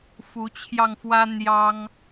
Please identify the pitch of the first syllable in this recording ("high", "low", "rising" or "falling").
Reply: rising